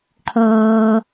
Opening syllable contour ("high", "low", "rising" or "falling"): low